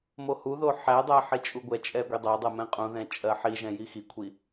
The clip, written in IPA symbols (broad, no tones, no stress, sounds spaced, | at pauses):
m o h u ð o ħ æ dˤ æ ħ i t͡ʃʼ u ɡʷ ɛ t͡ʃʼ ɛ ɡʷ i dˤ æ dˤ ɜ m ɛ̃ qʼ ũ ð ɛ̃ t͡ʃʼ ɜ ħ i ʒ ɛ̃ j i x i kʷʰ i